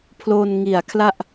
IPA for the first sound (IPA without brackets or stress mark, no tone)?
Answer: pʰ